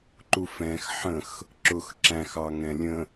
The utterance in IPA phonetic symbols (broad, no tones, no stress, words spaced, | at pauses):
ǃufɛ̃x ħə̃x | ǁʊx ǁæ̃x ɑŋɛ̃lʲə̃